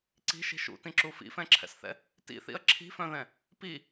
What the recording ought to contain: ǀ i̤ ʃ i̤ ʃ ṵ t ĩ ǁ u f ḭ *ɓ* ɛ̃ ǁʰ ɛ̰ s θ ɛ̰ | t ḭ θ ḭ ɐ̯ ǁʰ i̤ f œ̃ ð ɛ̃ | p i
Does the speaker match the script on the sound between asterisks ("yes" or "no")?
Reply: no